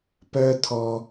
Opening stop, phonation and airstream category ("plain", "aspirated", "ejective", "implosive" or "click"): plain